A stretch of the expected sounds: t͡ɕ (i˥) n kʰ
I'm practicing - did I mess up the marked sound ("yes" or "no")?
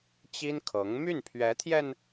no